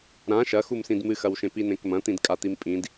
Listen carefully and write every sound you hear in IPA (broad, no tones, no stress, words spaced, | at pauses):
ɾã ʃɐxumsĩd mɨxɐwʃẽ pinẽkmɐ̃t̪ĩd kʼat̪impʼĩd